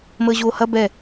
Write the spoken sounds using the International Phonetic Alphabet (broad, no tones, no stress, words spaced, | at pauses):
məːʑoːhɐ bɛ